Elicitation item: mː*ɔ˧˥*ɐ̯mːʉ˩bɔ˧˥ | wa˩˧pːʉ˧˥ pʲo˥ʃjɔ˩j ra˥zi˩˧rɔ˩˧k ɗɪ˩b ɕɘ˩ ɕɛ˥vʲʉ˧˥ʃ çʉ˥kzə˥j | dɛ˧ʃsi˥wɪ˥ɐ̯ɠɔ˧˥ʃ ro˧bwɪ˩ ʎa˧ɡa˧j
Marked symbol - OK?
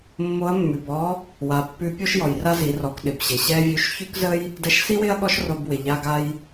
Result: no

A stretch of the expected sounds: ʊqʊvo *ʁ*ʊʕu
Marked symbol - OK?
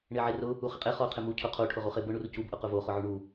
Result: no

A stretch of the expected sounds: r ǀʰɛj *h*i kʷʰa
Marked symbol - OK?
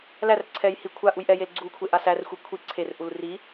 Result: yes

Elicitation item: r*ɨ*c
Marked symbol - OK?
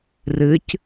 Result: yes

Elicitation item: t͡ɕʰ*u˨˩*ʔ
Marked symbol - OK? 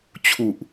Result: yes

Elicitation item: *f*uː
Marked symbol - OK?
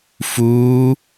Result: yes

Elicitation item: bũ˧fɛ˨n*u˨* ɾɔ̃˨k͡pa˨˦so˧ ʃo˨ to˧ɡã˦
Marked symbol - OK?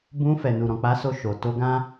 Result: yes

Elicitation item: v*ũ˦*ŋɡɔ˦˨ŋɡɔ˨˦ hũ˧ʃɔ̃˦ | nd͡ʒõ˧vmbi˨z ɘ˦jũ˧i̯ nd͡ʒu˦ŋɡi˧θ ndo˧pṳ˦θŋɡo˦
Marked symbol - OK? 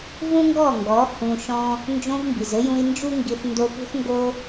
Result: yes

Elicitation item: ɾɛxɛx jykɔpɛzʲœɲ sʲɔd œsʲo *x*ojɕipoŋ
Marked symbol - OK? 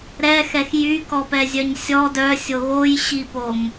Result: no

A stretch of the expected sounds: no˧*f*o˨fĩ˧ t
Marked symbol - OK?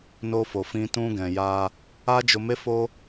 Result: yes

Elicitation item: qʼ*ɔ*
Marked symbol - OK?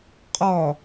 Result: yes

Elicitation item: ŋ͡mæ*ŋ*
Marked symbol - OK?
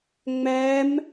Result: no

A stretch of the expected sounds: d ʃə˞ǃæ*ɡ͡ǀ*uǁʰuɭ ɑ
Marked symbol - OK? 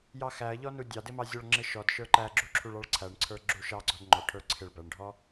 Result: no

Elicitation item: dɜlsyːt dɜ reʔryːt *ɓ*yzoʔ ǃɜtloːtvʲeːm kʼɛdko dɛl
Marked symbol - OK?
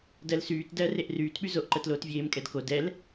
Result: yes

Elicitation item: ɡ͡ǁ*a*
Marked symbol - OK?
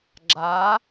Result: yes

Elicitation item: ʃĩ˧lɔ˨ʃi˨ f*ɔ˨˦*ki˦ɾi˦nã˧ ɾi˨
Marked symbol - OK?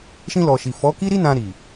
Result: yes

